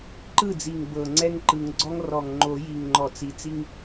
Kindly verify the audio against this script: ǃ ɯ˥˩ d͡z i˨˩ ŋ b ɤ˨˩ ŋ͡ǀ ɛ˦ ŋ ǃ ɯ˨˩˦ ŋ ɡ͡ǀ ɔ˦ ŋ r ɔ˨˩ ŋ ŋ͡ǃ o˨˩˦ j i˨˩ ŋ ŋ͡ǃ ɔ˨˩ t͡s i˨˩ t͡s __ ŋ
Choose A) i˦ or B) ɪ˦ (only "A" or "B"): A